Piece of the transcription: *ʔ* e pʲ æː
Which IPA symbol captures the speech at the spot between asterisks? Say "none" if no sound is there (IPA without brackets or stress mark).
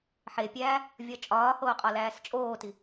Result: ħ